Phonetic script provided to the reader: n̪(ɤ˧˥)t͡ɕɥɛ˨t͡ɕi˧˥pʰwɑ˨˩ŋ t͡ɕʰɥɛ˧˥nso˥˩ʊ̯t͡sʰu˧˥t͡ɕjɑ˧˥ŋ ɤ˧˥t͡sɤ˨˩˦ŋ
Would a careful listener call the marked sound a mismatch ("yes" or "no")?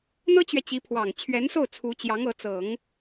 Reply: yes